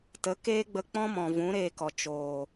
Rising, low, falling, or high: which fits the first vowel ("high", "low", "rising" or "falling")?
rising